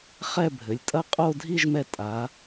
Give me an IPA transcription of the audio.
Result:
χɛ˥˧bʱɘ˩˧lʲ tʼɐ˥˧qʼo˥˧dʱi˥˧ʒmɛ˧ tʼa˩˧

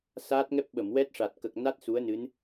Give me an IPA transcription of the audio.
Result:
saː˦˥t̚ ŋɛ˦˥p̚ ɓə˨˩˨mwɛ˦˥t̚ʂa˨˩t̚ kə˨˩k̚na˦˥t̚ su˧˥ə̯nɨ˧˥n

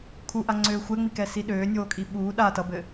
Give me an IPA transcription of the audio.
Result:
kʰuʔaŋ͡ǀøː xʷɛŋ͡mikɛsi ɗøːnʲoːkʼi ɓuː ɗa tʌbɘ

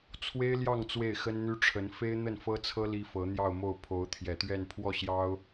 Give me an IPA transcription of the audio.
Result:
t͡sʰwe˥ɪ̯ljɑ˥˧ŋ t͡swe˥˩ɪ̯xə˥nn̪y˥ʈ͡ʂʰə˧˥n fe˥ɪ̯n̪ə˥˩nfɤ˥t͡sʰɤ˥ li˥fɤ˧˥n̪jɑ˥˧ʊ̯mo˥˩ʊ̯ pʰo˧˥ʊ̯t̪ʰjɛ˨˩t̪ɥɛ˥˧n pʰwɔ˥˩ɕjɑ˥ʊ̯

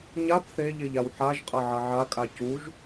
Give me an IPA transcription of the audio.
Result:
ɲab θeʎeʎ awħaʒqʼɐ ʕɐʕakʼa cuʒ

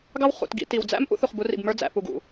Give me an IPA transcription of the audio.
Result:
ɡɑ˦w χṵ˨t ɡḭ˨ ti˨w d͡zæ̰˦m ʔṵ˦θu˨χbu˨˦rḭ˨b mə˞˦d͡zæ̰˨ pu˨ɡṵ˨

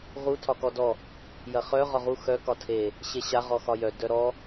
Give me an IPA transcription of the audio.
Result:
ʁu tʰɒkɔdɔ | jɐχœ ʁɒʁu xœ kɒtʰe | ɕeɕa ʁɔxɒjœ dœɾɔ

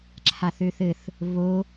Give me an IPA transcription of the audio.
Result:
ǁʰaθøθɘθ | βo

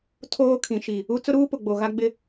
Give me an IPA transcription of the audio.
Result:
tʰoː˦kʰĩ˨ʃi˨ | u˦ t͡sʊ˦ɾuː˦pʊ˨ ɡ͡bo˨ɣa˦ ɡ͡bɪ˦

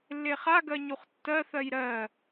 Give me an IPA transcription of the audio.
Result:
lːeχaɡɜ ɲuχtːɜθɜj ɾɜ

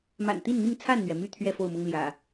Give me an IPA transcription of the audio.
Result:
ma̰˨˩nt̪i˥˨nn̪i˥˨ŋ t͡sʰa˥˨nn̪ɥɛ˩my˥˨ t̪ʰɥɛ˥˨fo˥˨ʊ̯mʊ˦ŋ ljä̰˨˩

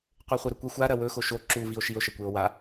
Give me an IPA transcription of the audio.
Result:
qʷeχʷɨɾɵkʷɐ xʷa ɾɐwɵ xoʃo ǁu vio̯ʃio̯ ʃɐkʷeo̯wa

